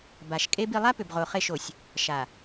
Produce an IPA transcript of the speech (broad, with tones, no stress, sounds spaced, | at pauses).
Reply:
b a˨ ʃ kʼ e˦ b i˨ lˠ a˦ p ʏ˨ b ʁ o˨ χ e˦˨ ʃ o˨ sʲ | ʃ a˨